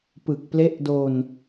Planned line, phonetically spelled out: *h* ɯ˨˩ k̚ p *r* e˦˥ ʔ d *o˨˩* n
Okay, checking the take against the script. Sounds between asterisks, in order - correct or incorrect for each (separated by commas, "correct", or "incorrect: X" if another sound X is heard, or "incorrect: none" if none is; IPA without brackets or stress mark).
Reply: incorrect: p, incorrect: l, incorrect: o˧